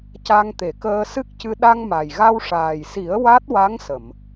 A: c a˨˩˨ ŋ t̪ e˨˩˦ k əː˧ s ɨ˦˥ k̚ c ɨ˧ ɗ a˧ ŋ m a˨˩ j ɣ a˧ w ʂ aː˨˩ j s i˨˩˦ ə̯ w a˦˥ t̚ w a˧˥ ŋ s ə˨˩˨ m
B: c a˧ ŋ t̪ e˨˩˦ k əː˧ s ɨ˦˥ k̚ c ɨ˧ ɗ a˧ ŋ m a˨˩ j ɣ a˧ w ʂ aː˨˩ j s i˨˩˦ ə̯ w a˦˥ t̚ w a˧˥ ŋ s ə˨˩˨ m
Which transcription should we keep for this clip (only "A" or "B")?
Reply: B